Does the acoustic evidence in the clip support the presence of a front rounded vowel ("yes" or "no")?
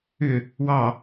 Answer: yes